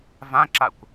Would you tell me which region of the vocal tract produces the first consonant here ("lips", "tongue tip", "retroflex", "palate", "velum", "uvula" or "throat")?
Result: lips